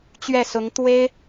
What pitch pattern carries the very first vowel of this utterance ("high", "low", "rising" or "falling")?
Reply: falling